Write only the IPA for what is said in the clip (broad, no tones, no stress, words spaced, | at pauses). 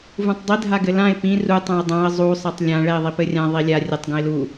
vũtˤdˤi dʱaɡɘlãɪ̯ pĩ ru tˤɛ̃ə̯dˤãə̯ zˤu sˤɛtˤlʲã ɭɛɪ̯ðˤipɘrʲã ðˤilʲa rʲɘtˤ ɡũɪ̯lu